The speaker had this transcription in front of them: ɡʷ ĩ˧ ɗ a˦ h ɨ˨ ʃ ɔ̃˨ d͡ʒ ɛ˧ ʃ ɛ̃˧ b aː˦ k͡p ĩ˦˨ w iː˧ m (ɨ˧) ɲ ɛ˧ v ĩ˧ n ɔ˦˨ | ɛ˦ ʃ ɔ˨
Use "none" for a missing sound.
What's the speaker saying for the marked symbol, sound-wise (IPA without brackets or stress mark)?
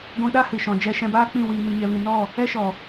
i˧